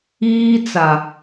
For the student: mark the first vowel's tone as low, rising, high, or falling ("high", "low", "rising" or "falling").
high